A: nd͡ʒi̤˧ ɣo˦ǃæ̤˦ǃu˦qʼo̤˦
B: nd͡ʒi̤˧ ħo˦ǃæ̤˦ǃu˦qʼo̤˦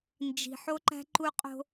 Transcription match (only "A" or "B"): B